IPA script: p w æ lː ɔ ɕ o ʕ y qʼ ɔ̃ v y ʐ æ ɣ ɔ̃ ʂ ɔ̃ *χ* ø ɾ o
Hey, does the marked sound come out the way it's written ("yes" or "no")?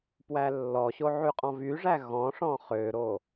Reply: yes